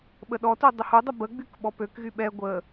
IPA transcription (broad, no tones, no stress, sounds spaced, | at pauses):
ɓ ə ɗ ɔ t u dˤ ə h u dˤ ə b ə ɡ͡b y k ɓ ɔ p ø k ɣ y ɓ ɛ ɡʷ ə